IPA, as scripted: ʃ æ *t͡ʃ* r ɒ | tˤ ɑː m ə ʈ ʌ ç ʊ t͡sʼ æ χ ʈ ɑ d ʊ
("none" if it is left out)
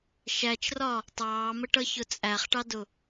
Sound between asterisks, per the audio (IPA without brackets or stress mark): t͡ʃ